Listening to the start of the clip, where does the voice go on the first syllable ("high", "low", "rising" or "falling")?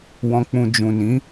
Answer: low